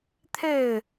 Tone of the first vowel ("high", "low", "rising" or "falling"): falling